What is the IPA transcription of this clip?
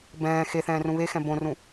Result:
bɛ̃ː xe θɛ̃ːrũβexɛ̃ bõrũ

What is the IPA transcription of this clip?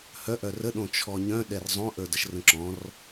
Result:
hœʔœr əɗõt͡ʃʰɔ ɲœ̃ɗɛr zˤõ ʔə˞dəʃrə̃ǁɔ̃r

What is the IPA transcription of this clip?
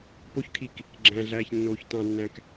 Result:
poçkʰik | ɡ͡ǁæ̃ɮæːç nːoːçtɑ̃nːæ̃k

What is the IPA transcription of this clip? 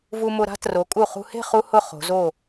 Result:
vu˧mʊ˧ ɾa̤˥ tro˩˧kʼu˧˩χṳ˧he̤˥˧ χu˥hʊ˥˧χo̤˩˧ zo˧˩

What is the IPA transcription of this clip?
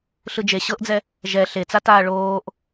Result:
ɬɯd͡ʒe ɕɤʔd͡zɛ | ʒɛ ɬet͡sataː ɭoːʔ

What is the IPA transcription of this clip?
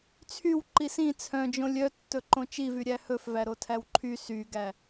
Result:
t͡sʰyw ǃisĩ t͡sʰœ̃d͡ʒõ lʲœtːɵǃõ t͡ʃivy ɾʲæhɵfvæ ɾotʰæwǃʰy syɡæ

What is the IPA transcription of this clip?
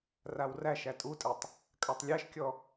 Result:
rawræʃ ætʼutʼɛtˤ | kʼatˤlʲæʃkʲɔ

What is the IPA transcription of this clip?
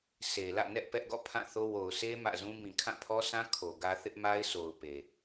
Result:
sʰe˨ lä̰˦˨nɛ˦ʔ pɛ˦ʔɡɔ̰˦˨ pʰã˦˨θo˦ wo˨ʊ̯sʰe˦ mä̰˦˨zũ˦ mĩ˨kʰã˦˨pʰɔ˦sʰã˦ kʰo˨ɡä˦ θɪ˦ʔma˦ɪ̯sʰo˨ʊ̯ pe˨

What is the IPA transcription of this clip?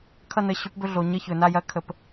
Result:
kʰʌ˥˨nə˧˥˧ɕɵ˧˥pbɵ˥˨ ɮo˩˧ ɲə˥˨ çɵ˩˧na˥˨ jɐ˧˥kʰə˩˧p

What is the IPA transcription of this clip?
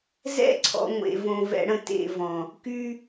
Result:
zɛ̰˦ǀʰɔ̰˨ŋʷḛ˨võ˨ vɛ̰˨ɽə̃˨ tḛ˦˨vɔ̃˨ | ky˦

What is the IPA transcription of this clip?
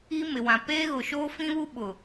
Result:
i˦mɪ˨wã˨ peː˦ɣʊ˨ʃoː˦ fĩ˦βu˦ɓʊ˨

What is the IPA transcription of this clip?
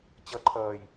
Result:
t͡ɕʌǃʰʌːj

